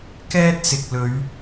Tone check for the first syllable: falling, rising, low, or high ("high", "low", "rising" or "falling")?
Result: high